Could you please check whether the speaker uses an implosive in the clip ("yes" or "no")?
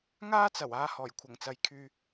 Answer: no